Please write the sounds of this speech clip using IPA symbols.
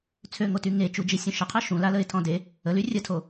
t͡sʰøŋoty ŋet͡ʃud͡ʒisʲũ ʃəqʰœ ʃũlaləɪ̯tʰɔ̃ de | əly rʲətʰo

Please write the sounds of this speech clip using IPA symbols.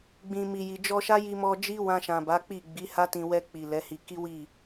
ɡ͡bĩ˨mi˨ji˨ d͡ʒɔ˧ʃa˦ji˧mɔ˧ d͡ʒi˦wã˧ʃã˨ ba˨˦k͡pi˦˨ ɡ͡bi˨˦ha˦tĩ˧ wɛ˧k͡pi˨ lɛ˨˦hi˧ ki˦wi˦˨

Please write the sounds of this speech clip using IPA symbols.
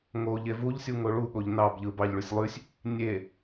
ŋo ʎevuʎsʲu ŋoɭuɠoʎ nɑbʎɯ bɑʎɭysʲ lˠysʲ | nʲe

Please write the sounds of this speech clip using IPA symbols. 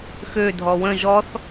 xødʱɔ wə̃ ʒɔθ

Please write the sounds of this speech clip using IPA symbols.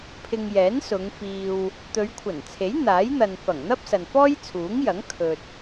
pʰɪ˧ŋjɛː˨˥nsʊ˨˧ŋ fiː˨w | t̪ɵ˨˧ɥkʷʰɐ˨˩nt͡sʰe˨˥j n̪aː˨˥jn̪ɐ˨n fɐ˨˩ŋn̪ɐ˥p̚ sɐ˨nfɔː˥jt͡sʰuː˨˥ŋjɐ˨˥ŋ kʰɵ˨t̚

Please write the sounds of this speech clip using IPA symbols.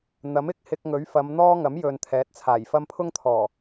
n̪ɐ˨˥m ɪ˥k̚ hɪ˧k̚ŋɵ˨˥ɥ fɐ˨˧mn̪ɔː˥ ŋɐ˨˥mjɵ˨n t̪ʰɛː˨˥t̚t͡sʰaː˨˩j fɐ˥m pʰʊ˥ŋt̪ʰɔː˨˩

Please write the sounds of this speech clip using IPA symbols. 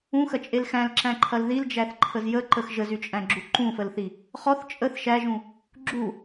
ũxɐt͡ʃʼel xæ̃lǁæ̃ǃʰɐl ðild͡ʒæθǃʰəz jəǃəx ʒəzyt͡ʃʼæ̃ɡ͡ǁu ǃũfəlθi | χɔθ t͡ʃʼəθ ʃæʒũ | ɡ͡ǁu

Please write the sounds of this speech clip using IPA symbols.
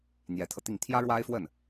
n̪jɛ˧˥t̪ʰɤ˧t̪i˥˩ŋ t̪ʰjä˥ɻwa˥ɪ̯fwə˥˩n

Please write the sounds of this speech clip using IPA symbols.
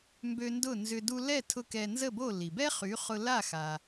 mbø˧ndʊ˥˩nzʏ˧ du˧lɛ˥˩tʰʊ˧ kɛ˧ nzə˥˩bo˥˩li˩ bɛ˥χy˩˥χʊ˧ la˥˩xa˩

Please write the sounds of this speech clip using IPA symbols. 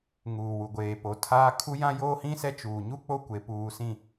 ŋuː˨wu˨ ɡʷeː˨po˨˦ tʰaː˦ kʰu˦ jã˦joː˦hĩ˦sɛ˦ t͡ʃuː˨ɲu˦ k͡po˦kʷe˨puː˨sĩ˨

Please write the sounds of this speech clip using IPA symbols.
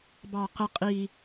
bɑ˨ qə˦qʼi˦

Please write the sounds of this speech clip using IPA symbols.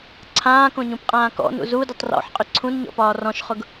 ǀʰãːkõɲũpqʼãː kɔ̰nṵ zudʏtˤ rɔ̰ħqʼʏ ǀʰũnɲɔ̰pɒː rɔ̃ʃχʊɡ

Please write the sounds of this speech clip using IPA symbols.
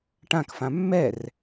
ʈãkfã mːɛr

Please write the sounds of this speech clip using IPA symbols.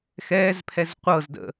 xɛːzpʰɛz qʷɤzdə̰

